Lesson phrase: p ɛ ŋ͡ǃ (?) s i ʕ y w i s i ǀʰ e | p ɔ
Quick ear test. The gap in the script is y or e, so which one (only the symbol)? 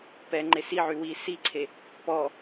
e